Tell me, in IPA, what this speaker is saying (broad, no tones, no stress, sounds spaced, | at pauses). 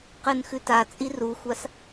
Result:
q ɨ n x ʉ t a t͡sʼ i r u xʷ a s